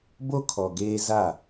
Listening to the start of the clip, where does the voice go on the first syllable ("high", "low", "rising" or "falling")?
high